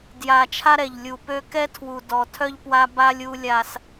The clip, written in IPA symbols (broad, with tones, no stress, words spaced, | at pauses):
dja˨ t͡ʃʰa˦ɾɛ˨ʎlʲu˨ pø˦ kɛ˦tʰwu˨dɔ˨tʰœ˦ʎ pwa˦ba˦lʲu˦ lʲa˦s